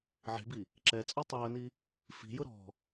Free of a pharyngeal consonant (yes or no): no